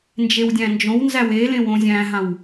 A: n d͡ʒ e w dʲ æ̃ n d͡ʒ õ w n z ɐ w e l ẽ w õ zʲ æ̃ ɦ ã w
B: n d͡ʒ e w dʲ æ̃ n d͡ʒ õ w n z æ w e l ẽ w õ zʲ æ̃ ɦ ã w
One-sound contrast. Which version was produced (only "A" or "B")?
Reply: B